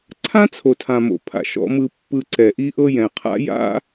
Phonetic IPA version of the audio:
ǀʰ ã˦ t͡sʰ o˨ tʰ ã˨ m o̰˨ pʰ a̰˨ ʃ ɔ̰˨ m ɯ˨ pː ɯ˨ ǀ ɛ˨ ʔ i˦ ʔ ɤ˦ j ɛ̃˨ qʰ a̰˦ j a̰˦

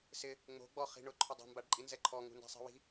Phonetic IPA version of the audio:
s ɪ | ŋ͡m o̤ ɡ͡b ɔ χ i̤ ɳ ʊ ǃʰ ʊ dˤ o̤ m b a ɖ ǃʼ i n z ɛ ǃʰ ɔ ŋ ṳ n d a̤ sˤ i̤ w i̤

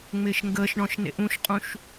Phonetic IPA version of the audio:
ŋ͡m ɪː ʃ ŋ ɡ əː ʃ ɳ ɔ̃ ʃ n ḛ ʔ ũ ʃ qʼ ũ ʃ

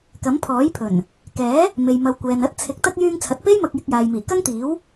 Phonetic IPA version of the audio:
k ɐ˨˥ m pʰ ɔː˨˥ j pʰ ɵ˨˩ n | k ɛː˨˥ | m e˨ j m ɐ˨˧ w kʷ ɛː˨ n ɐ˥ t̚ t͡sʰ ɪ˨˥ k̚ t̪ ɐ˥ k̚ j yː˧ ŋ t͡sʰ ɐ˨ t̚ p e˥ j m ɐ˧ k̚ j ɪ˧ k̚ j aː˨ j m iː˨˩ k ɐ˥ ŋ t̪ iː˨˥ w

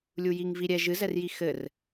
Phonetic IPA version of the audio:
lʲ u j i ŋ v i ɾʲ ɛ ʒ ɨ z ɛ r j i x ɘ r

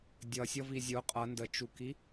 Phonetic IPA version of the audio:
dʲ ʌ sʲ ʌ v i zʲ ʊ qʼ ʌ n d ə t͡ʃ u k i

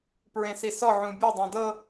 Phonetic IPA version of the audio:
p ɹ ẽ s i s ɔ ʕ ũ bʲ o dˤ ɛ̃ d ɤ

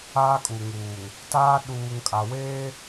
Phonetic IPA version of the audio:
aː˦ kʼ u˨ ŋ uː˨ ŋ | t aː˦ ɗ uː˨ ŋ kʼ a˨ w eː˦

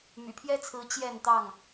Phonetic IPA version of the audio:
m y̰˨˩ pʰ j ɛ˦ t͡sʰ ɹ̩˨˦ t͡ɕ j ɛ˥˨ n t̪ ɑ˥˨ ŋ

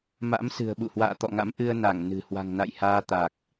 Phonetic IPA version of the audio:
m a̰˧˥ m s ɨ̤˨˩ ə̯ ɓ ṵ˧˨ h w a̰ː˧˨ t̪ ɔ̰˧˨ ŋ a̰˧˥ m ʔ ɨ˧ ə̯ n a˧˩ ŋ n ɨ̤˨˩ h w a̤˨˩ ŋ n a̰˧˨ j h aː˧ t̪ a˨˩ k̚

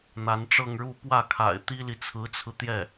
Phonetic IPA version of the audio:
n̪ a˧˥ n ʈ͡ʂ ɤ˥˧ ŋ ɻ u˥˧ p w ä˥˩ kʰ a̰˨˩ ɪ̯ t̪ i˥ l i˨ t͡sʰ ɹ̩˧˥ t͡sʰ ɹ̩˧ t̪ j ɛ˥˩

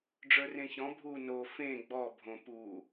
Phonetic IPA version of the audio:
ɖ͡ʐ ə˞ r ẽ ç ɔ̃ bʱ u n o f ẽ ɡ͡b ɔ bʱ õ p u

